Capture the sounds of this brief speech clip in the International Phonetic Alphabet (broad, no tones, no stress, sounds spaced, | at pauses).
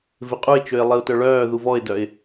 v ɪ qʼ u ɪ̯ t͡ʃ ø ɪ̯ lˠ i ʊ̯ t œ ɭ œː ð u v ɔ ɪ̯ d œ ɪ̯